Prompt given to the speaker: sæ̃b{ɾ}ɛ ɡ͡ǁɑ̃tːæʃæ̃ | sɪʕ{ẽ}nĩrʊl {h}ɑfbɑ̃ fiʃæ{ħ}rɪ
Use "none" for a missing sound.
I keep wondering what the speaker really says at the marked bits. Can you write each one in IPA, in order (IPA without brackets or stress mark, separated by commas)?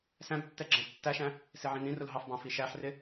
tː, ĩ, ɦ, ħ